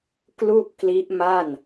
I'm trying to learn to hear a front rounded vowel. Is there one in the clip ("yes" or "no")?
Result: no